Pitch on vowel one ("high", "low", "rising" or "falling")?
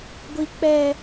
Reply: low